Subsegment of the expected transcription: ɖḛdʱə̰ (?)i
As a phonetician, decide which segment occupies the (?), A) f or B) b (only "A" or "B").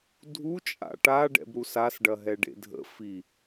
A